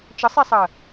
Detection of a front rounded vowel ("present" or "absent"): absent